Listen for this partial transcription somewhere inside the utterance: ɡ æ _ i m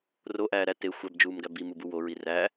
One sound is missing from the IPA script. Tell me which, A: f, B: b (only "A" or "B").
B